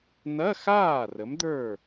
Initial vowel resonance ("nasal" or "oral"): oral